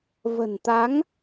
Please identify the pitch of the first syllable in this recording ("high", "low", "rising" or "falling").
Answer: low